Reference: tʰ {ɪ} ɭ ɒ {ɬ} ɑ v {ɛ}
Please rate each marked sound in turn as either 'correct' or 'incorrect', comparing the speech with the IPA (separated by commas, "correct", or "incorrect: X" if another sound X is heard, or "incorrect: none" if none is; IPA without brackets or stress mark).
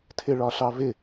correct, correct, incorrect: ɪ